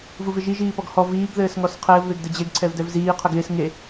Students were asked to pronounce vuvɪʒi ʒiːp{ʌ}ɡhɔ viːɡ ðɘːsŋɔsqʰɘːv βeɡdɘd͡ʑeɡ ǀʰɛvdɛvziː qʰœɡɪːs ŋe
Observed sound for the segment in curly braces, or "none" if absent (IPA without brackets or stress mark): ɔ